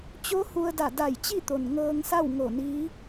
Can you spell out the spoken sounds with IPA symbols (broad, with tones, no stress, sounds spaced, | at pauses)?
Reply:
t͡ɕ o˧˥ h u˧ ə̯ d a˧˩ d a˧˩ j t͡ɕ i˥˨ t̪ o˩ n ŋ ɤː˧ ŋ s a˥˨ w ŋ o˧˩ n iː˧˥